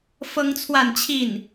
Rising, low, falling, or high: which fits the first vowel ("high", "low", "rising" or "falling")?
high